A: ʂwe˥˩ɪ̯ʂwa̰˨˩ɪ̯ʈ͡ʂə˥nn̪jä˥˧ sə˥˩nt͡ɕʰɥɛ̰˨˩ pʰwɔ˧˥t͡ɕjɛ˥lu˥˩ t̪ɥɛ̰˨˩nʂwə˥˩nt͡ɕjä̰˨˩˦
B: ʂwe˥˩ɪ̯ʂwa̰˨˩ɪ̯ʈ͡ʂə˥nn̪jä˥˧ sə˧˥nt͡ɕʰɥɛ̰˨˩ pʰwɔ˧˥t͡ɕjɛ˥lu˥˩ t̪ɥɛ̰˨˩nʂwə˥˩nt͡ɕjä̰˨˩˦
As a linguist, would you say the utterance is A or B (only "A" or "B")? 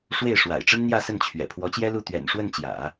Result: A